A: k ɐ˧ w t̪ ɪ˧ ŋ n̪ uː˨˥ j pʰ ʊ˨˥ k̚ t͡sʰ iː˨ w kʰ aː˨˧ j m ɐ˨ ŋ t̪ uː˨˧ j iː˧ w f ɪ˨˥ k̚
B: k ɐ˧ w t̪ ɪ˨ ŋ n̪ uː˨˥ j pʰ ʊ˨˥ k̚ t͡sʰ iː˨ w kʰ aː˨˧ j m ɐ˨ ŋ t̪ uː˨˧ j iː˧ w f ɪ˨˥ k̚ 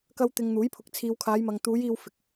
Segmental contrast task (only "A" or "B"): A